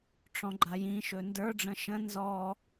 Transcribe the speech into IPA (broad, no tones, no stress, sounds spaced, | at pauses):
ʈ͡ʂ ɔ̃ ɡ͡ǃ a j ĩ ʃ ɵ n d ə˞ ɖ͡ʐ ə̃ ʃ ə̃ n z ɔ